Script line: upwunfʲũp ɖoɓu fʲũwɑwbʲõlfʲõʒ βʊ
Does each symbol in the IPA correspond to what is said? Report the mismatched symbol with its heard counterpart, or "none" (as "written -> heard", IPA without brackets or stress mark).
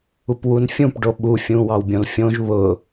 none